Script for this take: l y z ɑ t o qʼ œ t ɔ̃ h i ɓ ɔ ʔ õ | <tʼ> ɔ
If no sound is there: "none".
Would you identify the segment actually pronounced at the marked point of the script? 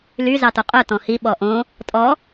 tʼ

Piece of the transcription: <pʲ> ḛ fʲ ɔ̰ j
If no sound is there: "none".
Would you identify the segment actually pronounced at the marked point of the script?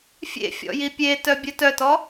fʲ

